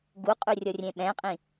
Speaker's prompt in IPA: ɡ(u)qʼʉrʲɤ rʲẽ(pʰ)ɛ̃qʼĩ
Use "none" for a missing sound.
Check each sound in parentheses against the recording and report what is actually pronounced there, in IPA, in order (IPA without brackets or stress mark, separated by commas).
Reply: u, ɓ